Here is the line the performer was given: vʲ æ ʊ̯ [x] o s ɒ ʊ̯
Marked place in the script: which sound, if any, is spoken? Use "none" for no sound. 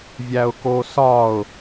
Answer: k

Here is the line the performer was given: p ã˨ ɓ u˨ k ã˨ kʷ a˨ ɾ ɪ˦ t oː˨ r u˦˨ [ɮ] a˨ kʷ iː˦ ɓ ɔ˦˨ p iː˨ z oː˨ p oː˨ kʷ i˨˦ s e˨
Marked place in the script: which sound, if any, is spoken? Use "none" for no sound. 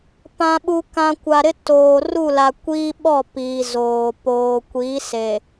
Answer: l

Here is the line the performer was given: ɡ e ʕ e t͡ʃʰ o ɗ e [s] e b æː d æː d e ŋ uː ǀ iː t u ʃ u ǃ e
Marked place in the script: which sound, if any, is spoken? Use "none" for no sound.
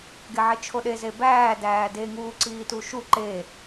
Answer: z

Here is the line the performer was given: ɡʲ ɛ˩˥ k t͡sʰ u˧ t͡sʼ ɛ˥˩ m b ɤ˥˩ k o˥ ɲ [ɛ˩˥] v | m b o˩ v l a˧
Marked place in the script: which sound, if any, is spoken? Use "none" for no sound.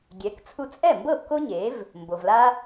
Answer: e˩˥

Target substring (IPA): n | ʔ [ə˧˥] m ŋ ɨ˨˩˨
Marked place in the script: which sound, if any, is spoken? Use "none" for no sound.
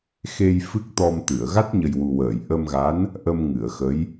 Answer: ə˧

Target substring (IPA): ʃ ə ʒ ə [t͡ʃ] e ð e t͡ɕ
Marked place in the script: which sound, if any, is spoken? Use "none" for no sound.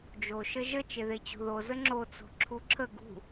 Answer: t͡ʃ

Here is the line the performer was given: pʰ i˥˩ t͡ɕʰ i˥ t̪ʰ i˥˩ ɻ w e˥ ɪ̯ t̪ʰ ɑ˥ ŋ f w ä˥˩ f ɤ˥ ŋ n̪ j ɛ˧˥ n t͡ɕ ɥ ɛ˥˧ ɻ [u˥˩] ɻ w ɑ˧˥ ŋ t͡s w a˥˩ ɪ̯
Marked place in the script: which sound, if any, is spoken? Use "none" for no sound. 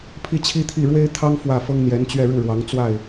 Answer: u˥˩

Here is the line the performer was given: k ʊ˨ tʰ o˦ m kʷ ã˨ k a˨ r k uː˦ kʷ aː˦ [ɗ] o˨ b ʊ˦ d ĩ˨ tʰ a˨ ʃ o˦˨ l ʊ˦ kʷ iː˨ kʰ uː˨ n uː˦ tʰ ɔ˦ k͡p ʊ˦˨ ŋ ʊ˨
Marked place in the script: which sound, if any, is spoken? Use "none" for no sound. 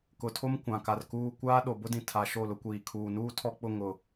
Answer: ɗ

